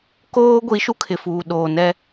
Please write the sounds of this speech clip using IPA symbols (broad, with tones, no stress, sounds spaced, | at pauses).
k oː˦ ɡʷ i˨˦ ʃ u˦ kʰ ɪ˨ f uː˨ ɗ oː˨ n ɛ˦